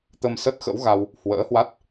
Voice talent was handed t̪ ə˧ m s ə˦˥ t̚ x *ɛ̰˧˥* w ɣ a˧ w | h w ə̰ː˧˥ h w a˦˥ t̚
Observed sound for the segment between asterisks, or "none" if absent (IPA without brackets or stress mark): ə̰˧˥